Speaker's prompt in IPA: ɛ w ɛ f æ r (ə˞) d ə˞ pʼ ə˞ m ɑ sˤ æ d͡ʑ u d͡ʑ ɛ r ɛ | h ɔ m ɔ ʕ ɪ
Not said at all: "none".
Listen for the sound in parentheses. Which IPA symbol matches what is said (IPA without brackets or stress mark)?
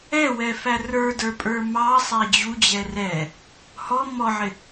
ə˞